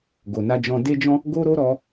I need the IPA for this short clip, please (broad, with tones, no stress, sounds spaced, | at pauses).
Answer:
ɡ o˨ n a˧ d͡ʒ ɔ̃˧ d e˧ d͡ʒ ɔ̃˧ | ɡ o˦ ɾ o˦ ɾ ɔ˧